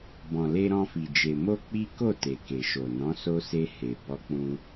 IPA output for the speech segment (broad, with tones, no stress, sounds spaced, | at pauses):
b ɔ̃˨ l e˧ ɾ ɔ̃˧ f i˨ d͡ʒ e˨ m o˧ k͡p i˦ k o˦˨ t e˨ k e˨ ʃ o˨ n ɔ̃˨˦ s o˧ s e˧ h e˨ b ɔ˧ k͡p ũ˧